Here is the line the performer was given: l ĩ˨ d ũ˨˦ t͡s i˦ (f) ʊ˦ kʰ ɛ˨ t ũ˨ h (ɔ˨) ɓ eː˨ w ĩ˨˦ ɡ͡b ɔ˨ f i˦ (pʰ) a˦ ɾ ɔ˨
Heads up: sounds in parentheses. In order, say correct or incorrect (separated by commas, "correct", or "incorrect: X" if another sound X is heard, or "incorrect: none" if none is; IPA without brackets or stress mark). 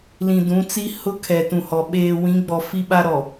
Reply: incorrect: h, correct, incorrect: ɓ